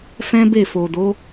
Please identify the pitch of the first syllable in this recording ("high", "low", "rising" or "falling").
high